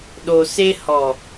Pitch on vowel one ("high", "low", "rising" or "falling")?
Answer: low